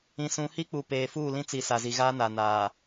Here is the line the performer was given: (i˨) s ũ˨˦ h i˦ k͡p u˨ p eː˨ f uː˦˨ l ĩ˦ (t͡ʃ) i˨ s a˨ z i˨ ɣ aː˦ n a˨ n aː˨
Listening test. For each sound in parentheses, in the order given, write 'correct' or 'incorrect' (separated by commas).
incorrect, incorrect